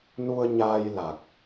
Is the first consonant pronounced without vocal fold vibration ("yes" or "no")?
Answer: no